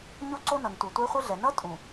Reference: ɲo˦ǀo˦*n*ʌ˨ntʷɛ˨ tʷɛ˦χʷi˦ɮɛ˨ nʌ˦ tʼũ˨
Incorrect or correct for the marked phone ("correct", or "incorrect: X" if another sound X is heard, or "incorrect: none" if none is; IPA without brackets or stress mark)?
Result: correct